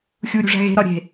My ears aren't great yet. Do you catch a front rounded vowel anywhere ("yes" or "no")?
no